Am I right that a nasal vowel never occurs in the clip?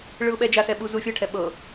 yes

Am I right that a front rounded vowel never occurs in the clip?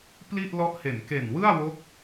yes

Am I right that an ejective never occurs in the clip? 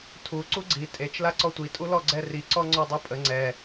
no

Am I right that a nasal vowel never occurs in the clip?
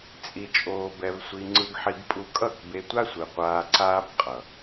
yes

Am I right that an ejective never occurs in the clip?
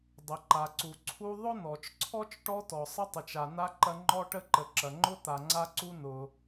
yes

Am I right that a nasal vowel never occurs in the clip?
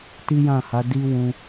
no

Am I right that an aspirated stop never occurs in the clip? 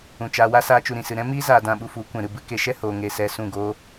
yes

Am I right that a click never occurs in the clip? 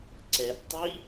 no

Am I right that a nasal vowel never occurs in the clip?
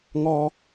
yes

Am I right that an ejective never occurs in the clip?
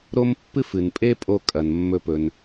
no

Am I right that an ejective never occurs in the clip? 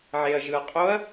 no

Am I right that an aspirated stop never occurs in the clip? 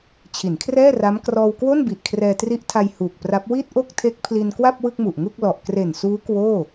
no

